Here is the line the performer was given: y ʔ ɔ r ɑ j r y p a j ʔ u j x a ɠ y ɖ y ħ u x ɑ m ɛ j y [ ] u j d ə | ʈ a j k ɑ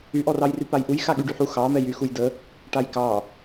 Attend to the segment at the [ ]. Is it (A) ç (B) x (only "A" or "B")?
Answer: B